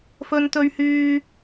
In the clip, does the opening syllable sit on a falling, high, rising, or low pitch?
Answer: high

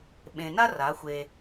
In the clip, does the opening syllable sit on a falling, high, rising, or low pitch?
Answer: low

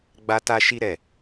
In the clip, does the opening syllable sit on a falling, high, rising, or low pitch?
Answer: high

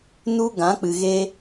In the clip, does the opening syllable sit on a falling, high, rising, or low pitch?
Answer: high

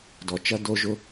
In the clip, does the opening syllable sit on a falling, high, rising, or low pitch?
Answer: low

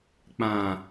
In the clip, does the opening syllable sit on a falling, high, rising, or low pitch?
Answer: low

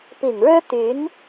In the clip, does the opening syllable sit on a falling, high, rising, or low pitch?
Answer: low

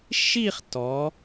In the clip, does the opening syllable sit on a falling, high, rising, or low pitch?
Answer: falling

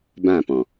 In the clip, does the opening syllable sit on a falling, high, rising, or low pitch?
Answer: falling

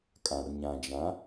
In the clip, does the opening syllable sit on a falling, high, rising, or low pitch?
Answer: low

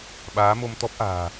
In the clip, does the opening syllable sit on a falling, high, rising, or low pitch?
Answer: rising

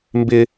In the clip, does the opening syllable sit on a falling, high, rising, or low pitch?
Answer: high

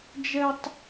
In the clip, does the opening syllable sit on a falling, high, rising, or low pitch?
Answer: high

